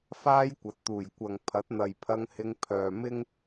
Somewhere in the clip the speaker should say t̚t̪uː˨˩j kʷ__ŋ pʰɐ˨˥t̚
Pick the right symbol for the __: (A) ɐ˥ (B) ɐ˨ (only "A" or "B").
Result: B